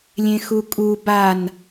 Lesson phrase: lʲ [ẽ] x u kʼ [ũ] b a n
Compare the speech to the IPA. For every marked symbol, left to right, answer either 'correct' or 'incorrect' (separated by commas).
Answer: correct, incorrect